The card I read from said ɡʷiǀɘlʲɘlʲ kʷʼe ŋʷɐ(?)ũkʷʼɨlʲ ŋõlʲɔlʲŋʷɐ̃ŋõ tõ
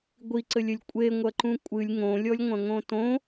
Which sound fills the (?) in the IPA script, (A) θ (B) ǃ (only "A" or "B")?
B